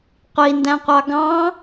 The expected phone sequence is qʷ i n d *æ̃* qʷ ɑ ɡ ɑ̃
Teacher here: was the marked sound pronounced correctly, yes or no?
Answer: yes